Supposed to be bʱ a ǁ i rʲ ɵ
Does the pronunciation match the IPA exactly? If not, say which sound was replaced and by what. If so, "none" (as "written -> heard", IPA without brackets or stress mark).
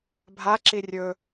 none